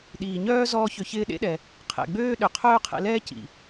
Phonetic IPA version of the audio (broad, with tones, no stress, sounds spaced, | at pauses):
ɗ iː˩ ɲ œː˥ z ɔː˥ ç ʏ˧ ç ɪː˥ ɗ ḛ˥ ɗ ɛ˩ | qʰ ɛ̰˩ ɡ͡b øː˥ ɗ ʏ˩ qʰ œː˥ qʰ ɛ̰˧ l ɛː˥ c ḭ˩